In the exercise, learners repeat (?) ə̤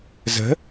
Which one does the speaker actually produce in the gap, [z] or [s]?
z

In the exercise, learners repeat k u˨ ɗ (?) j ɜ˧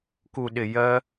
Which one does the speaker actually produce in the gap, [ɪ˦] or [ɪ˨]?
ɪ˨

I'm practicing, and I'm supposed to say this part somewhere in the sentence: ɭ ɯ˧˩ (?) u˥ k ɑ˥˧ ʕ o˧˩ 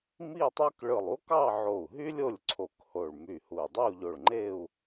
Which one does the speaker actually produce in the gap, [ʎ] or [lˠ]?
lˠ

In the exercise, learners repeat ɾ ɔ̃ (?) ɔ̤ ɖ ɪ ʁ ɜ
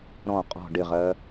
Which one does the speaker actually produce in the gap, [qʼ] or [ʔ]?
qʼ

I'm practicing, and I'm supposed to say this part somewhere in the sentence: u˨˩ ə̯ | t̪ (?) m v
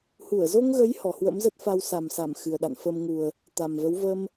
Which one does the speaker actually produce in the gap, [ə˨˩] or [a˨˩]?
a˨˩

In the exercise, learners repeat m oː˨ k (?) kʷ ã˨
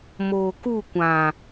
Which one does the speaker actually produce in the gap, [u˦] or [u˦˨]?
u˦˨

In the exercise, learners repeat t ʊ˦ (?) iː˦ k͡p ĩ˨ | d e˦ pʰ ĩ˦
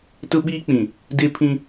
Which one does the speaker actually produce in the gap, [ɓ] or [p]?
ɓ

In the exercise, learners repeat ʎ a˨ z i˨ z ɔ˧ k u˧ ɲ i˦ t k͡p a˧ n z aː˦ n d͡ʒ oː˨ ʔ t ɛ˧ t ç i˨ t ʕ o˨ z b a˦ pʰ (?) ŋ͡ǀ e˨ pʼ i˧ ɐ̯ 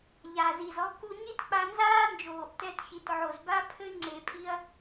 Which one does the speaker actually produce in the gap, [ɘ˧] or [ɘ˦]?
ɘ˦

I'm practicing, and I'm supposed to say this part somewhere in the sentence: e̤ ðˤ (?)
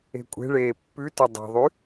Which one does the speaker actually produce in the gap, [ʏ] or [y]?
y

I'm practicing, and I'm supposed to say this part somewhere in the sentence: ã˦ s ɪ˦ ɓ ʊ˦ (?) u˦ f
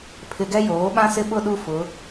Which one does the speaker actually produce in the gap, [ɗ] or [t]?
ɗ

